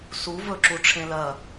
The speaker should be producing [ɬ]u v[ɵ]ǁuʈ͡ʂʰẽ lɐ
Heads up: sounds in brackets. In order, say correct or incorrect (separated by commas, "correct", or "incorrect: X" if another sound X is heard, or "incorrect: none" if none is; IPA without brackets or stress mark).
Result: incorrect: s, correct